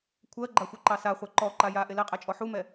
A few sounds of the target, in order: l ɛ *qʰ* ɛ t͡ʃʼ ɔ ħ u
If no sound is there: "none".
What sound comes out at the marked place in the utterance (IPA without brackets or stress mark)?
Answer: qʼ